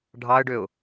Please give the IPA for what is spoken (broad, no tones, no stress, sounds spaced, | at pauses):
ɖʱ ɑ ə̯ ɖ ø ʊ̯